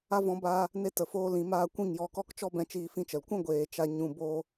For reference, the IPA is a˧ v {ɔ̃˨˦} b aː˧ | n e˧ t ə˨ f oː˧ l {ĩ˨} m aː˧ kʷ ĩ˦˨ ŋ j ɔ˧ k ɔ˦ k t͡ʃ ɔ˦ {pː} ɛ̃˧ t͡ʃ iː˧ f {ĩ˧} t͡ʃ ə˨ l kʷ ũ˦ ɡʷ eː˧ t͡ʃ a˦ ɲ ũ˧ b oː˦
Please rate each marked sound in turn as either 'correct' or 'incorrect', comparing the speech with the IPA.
correct, correct, incorrect, correct

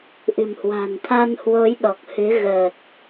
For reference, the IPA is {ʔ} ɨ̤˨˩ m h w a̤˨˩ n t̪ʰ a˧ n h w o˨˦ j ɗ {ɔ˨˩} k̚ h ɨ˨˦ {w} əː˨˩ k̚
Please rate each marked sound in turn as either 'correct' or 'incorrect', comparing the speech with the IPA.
correct, correct, incorrect

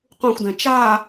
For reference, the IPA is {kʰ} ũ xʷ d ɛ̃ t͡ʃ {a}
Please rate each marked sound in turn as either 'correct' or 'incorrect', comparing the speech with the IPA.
incorrect, correct

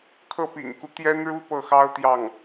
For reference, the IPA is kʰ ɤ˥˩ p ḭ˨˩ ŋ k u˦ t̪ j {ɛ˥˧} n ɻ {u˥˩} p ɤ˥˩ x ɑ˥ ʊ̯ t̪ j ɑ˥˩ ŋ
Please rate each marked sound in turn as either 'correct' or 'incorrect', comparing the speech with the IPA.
incorrect, incorrect

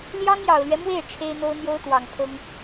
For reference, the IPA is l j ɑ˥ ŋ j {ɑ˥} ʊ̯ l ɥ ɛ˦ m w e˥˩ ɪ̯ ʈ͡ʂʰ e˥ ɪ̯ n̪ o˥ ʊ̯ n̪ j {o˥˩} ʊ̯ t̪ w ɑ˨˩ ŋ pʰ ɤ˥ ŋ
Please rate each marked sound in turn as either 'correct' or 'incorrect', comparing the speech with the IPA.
incorrect, incorrect

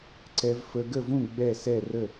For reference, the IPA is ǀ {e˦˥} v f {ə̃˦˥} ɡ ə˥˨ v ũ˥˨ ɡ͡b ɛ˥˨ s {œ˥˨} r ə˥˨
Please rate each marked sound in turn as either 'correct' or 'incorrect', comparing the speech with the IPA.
incorrect, incorrect, incorrect

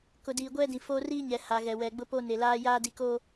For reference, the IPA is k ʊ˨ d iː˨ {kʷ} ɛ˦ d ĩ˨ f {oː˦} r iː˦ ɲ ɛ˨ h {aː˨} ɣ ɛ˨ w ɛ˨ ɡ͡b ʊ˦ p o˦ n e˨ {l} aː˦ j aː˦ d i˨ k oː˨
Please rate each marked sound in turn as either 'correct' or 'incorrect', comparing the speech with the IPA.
incorrect, incorrect, incorrect, correct

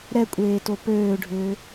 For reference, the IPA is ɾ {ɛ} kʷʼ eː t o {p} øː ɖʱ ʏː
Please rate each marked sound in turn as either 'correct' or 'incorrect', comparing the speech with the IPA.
correct, correct

